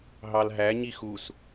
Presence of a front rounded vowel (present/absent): absent